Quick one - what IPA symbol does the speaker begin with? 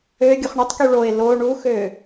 ø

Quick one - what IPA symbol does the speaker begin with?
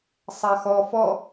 sˤ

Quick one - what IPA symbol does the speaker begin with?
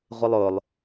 ʁʷ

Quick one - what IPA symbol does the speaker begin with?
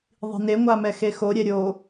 ðˤ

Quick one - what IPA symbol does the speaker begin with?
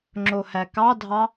ŋ͡ǁ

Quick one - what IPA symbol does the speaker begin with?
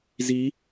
z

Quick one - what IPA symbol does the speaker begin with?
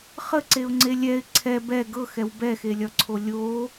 χ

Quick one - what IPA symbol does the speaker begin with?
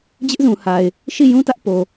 d͡ʑ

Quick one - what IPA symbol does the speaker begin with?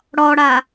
ɽ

